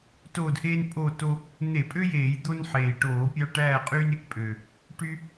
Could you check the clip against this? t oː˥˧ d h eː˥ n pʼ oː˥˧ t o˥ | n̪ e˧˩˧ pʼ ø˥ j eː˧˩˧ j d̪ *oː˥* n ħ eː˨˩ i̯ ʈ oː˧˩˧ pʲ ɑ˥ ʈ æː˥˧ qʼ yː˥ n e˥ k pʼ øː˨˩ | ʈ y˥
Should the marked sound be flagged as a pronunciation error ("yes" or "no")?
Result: yes